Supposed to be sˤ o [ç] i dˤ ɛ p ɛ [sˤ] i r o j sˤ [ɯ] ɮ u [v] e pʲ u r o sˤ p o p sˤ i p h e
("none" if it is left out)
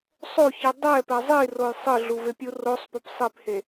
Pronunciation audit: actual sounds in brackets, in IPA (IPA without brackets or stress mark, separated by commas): ç, zˤ, ɯ, v